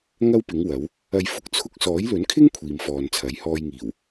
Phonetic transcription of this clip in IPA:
ŋ ɐ˥ w p ɪ˨˥ ŋ w ɐ˨˥ w | ɐ˨ j f ʊ˨˥ k̚ t͡sʰ ʊ˧ k̚ s ɔː˨˥ j l ɵ˨˥ n kʰ ɪ˥ ŋ kʷʰ iː˨ m f ɔː˨ n t͡sʰ ɐ˨˥ j h ɔː˧ j ŋ iː˨˩ w

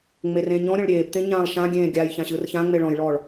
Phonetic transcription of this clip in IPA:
ŋ͡m e r ẽ ɲ ɔ̃ ɾʲ ɔ̃ ɭ ɾʲ eː b t̪ ẽ ɲ ãː lˠ ʃ ã ɡʲ ẽː ɡʲ a j ç ã ɕ ɯ r ç ã ŋ͡m e ɭ ɔ̃ j ɭ ɔː ɭ

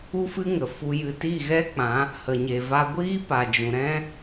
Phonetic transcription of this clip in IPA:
u˦ f ɨ˦ ŋ ə˨ f u˧ j ɨ˧ t i˦˨ ɣ ɛ˦ k͡p ã˨˦ | h ə˨ ɲ e˨ v a˧ ɡʷ iː˦ p a˨ d͡ʒ ũ˨ ɾ ɛ̃˦

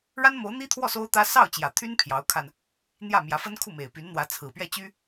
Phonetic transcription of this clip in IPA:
ɻ a˥ n m o˧˥ ʊ̯ n̪ i˥ t̪ʰ w ɔ˥˩ s o˥ ʊ̯ t̪ ä˥ s ɑ˥˩ ʊ̯ t͡ɕ j ä˨˩ t̪ʰ y˥ n pʰ j ɑ˧˥ ʊ̯ kʰ a˧ n | n̪ j ä˥˩ m j ä˧˥ f ə˥ n kʰ u˥˩ m e˨˩ ɪ̯ p y˧˥ n n̪ w ä˧˥ t͡sʰ ɹ̩˨˩ p ɥ ɛ˥˩ t͡ɕ y˥

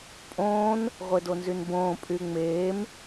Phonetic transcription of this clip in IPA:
pʼ õː n | ʁʷ e d o n z y n b õː pʼ y ŋ͡m eː m

